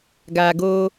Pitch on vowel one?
low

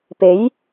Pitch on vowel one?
rising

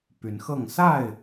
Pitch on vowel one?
rising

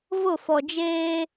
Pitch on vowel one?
falling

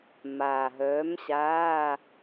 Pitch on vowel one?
low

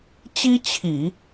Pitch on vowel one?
high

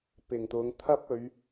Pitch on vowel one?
low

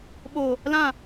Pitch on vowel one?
low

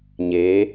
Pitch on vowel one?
rising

